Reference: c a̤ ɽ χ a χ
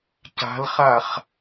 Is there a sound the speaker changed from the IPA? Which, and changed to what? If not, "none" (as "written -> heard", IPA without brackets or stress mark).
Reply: ɽ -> l